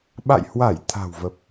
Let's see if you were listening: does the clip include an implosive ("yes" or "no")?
yes